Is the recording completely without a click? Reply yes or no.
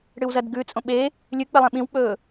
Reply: yes